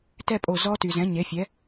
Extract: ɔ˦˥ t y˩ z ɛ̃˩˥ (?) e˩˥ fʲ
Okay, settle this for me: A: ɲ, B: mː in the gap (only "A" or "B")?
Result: A